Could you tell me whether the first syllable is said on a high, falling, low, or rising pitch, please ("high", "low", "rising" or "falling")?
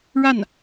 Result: falling